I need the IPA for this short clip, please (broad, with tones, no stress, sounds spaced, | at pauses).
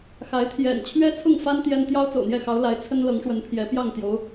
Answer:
x a˧˥ ɪ̯ t̪ʰ j ɛ̰˨˩ n t͡ɕʰ ɥ ɛ˥ t͡sʰ ʊ˥˩ ŋ f a˥ n t̪ j ɛ˥ n t̪ j ɑ˥ ʊ̯ t͡s o̰˨˩ ʊ̯ n̪ j ɛ˥˩ x ɑ˧˥ ʊ̯ l a˧˥ ɪ̯ t͡sʰ ə˥ n l ɤ˧˥ ŋ ʂ w ə˧˥ n pʰ j ɛ˧˥ p j ɑ˥˩ ŋ t̪ j o˧˥ ʊ̯